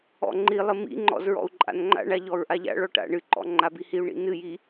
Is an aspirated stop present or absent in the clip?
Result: absent